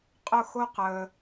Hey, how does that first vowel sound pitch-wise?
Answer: falling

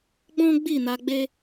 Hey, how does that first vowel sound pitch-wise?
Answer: high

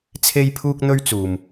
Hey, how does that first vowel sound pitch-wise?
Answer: high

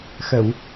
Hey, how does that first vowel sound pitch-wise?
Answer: low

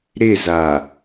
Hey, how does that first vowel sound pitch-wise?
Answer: falling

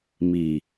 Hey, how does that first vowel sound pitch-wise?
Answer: low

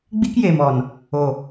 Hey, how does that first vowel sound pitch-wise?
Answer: high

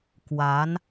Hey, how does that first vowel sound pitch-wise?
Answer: rising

